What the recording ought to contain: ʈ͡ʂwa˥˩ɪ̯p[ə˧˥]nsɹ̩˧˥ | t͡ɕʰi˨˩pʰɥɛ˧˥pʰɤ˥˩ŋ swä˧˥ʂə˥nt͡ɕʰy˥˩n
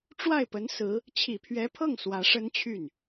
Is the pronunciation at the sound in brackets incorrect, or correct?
correct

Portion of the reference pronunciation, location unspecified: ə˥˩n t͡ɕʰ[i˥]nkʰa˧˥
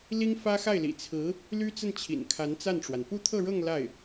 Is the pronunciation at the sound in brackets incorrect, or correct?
incorrect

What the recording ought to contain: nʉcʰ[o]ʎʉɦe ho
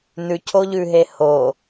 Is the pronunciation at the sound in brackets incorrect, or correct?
correct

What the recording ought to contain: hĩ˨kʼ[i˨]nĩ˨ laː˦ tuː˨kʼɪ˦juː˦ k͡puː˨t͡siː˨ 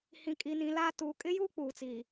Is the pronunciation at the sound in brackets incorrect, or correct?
correct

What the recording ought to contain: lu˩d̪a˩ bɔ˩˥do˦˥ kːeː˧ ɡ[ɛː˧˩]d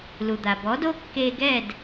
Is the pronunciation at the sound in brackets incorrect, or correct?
correct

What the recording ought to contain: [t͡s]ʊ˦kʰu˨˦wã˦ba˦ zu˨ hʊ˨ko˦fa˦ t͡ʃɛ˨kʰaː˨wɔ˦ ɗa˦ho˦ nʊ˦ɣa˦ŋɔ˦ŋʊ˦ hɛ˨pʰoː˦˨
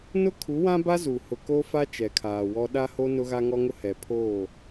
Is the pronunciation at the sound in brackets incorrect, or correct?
incorrect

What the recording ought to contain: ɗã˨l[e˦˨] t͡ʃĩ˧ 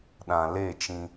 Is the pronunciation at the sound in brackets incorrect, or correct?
correct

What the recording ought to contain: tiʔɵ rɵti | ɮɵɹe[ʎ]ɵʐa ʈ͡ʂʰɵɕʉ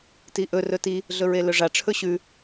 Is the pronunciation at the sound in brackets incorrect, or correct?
incorrect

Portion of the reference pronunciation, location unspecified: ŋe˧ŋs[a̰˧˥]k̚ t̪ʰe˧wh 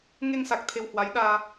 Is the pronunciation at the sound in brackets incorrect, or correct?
incorrect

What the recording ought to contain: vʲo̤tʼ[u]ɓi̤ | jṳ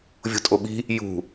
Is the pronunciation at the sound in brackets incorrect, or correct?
incorrect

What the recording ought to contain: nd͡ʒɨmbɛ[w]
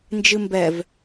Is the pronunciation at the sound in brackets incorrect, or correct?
incorrect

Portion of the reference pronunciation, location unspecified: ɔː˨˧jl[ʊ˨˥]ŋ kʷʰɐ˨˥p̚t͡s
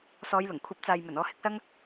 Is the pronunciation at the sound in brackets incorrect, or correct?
incorrect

